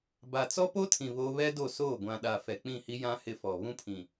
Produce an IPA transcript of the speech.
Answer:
b a˨ t͡s ɔ˦ p o˦ tʰ ĩ˨ β o˦ β ɛ˦ d o˦˨ s oː˦˨ ɡʷ ã˨ ɗ a˨ f ɛ˨ k͡p ĩ˦˨ h i˦ j ã˦ h ɪ˦ f ɔ˨ β ũ˦ pʰ ĩ˨

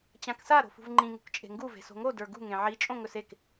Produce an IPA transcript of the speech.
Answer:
t͡ɕ ã k s a ɾ o̤ f ṳ v ŋ͡ǃ ĩ ŋ ṳ k t͡ʃʼ e̤ ŋ ɡ u v e̤ s o̤ ŋ o d ə˞ ɡ ṳ ŋ ẽ ʕ i t͡ʃʼ õ ŋ ɵ s e k

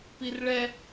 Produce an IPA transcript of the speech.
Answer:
p i r ɭ ɛ

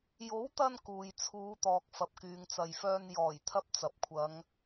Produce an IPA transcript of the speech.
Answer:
j o˨˥ w t̪ ɐ˧ n k uː˨ j t͡sʰ uː˨˧ t̪ ɔː˨ k̚ f ɐ˨ p̚ k yː˨ ŋ t͡s ɐ˨ j f œː˧ n j ɔː˨˩ j t̪ʰ ɐ˥ p̚ t͡s ɐ˨ p̚ kʷʰ ɐ˨˧ ŋ

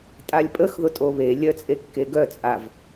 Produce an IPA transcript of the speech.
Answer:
tʼ a lʲ pʼ ə x ð ʊ tʼ o β e lʲ œ t͡sʼ e kː e ɡ œ t͡sʼ a v

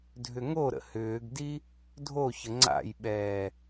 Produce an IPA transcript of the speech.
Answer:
dʱ ʏ ŋ o ɾ ə̰ h ʏː ɡ d i | dʱ o ç ə ŋ͡ǀ a̰ j ɓ ɛː

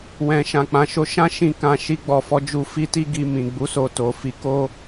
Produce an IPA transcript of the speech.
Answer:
w ɛ̃˨ ʃ ã˨ k͡p ã˨˦ ʃ o˧ ʃ ã˦ ʃ ĩ˧ k ã˦ ʃ i˦ ɡ͡b ɔ˦ f ɔ˧ d͡ʒ u˧ f i˦ t i˦ ɡ i˧ m ĩ˨ ɡ͡b u˨˦ s o˧ t o˨ f i˧ k o˦

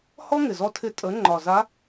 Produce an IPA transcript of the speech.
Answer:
h ɔ˥ ŋ ɪ˨˩ z ɔ˦˨ tʰ ɪ˧˥ tʼ ə˩˥ ŋ͡ǃ ɒ˨˩ z a˧˥

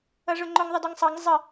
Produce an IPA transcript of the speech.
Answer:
ʌ ʐ ʊ ŋ͡ǃ ʊ ŋ ðˤ ɪ d ʊ ŋ sˤ ʌ ŋ zˤ ə

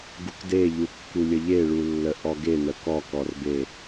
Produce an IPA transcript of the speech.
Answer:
ɡ u k d e ʎ u kː u lʲ ə ʎ e ɭ u lː ə ʔ ɔ ɡ e n ə k ɔ k ɔ r b e

